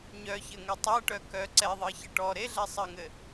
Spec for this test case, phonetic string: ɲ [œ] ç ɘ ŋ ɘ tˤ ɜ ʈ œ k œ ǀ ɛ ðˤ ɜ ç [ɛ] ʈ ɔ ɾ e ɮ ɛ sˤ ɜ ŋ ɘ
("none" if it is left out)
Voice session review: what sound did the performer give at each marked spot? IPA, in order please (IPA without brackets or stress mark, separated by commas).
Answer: œ, ɘ